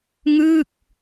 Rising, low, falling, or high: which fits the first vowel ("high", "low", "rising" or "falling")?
falling